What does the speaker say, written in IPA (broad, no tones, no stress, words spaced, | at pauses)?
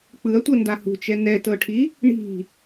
k͡pɯɐ̯tʷɤ ndahṳt͡ʃɛ nɛtɤʈʰi | ɳi̤